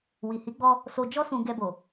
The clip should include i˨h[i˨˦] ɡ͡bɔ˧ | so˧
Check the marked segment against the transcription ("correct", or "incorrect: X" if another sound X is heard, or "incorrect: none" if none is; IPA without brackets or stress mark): correct